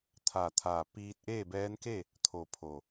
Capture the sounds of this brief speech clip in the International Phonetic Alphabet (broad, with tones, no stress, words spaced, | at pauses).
t̪ʰaː˩t̪ʰaː˩ piː˧t̚ ʔeː˥˨bɛː˧˥nke˥˨ | t̪ʰo˧˩pʰo˩